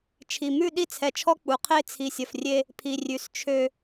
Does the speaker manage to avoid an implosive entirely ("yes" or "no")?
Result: no